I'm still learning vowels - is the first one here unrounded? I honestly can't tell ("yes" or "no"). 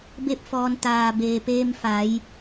yes